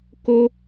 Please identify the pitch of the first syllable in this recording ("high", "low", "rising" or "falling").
high